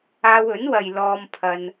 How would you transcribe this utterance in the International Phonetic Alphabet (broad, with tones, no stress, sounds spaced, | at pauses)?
aː˧ w ɵ˨˥ n w ɐ˨ j l ɔː˧ m pʰ ɐ˧ n